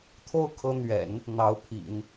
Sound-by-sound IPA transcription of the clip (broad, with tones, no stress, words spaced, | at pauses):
t̪ʰo˥ʊ̯kʰɤ˧˥n̪ɥɛ̰˨˩˦n | n̪ɑ˧˥ʊ̯pʰḭ˨˩˦n